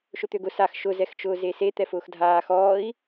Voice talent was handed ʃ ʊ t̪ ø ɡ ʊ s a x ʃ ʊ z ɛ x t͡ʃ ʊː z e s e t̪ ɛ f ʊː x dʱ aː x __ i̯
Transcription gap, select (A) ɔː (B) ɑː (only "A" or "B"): A